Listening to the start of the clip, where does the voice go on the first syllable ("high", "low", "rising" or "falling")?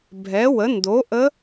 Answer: rising